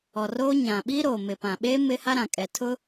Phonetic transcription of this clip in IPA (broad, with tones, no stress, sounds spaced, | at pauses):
ɔ˨ r oː˦ ɲ ã˨ ɓ i˦ ɾ oː˨ m ɪ˨ p ã˨ ɓ eː˦ m ɪ˦ h a˦ ɾ ã˨ kʼ ɛ˨ tʰ ʊ˦